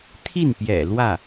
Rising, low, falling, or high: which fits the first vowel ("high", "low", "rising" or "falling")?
falling